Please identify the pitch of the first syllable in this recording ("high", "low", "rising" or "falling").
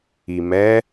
low